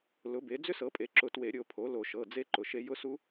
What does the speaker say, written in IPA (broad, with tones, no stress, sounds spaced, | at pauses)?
l ʊ˩˥ b e˩˥ d͡z ʏ˦˥ s ɤ˩˥ pʼ e˩˧˩ ǁ ʊ˨˩˦ t w e˨˩˦ ɾʲ o˩˧˩ pʰ o˩˥ l o˨˩˦ ʃ ɤ˩˧˩ d͡z e˦˥ ǃ ʊ˩˧˩ ʃ e˦˥ j ʊ˦˥ s u˦˥